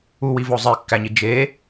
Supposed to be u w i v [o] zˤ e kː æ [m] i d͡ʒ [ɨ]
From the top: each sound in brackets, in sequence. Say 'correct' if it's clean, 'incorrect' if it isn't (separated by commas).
correct, incorrect, incorrect